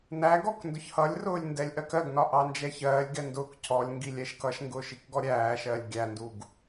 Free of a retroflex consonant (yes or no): yes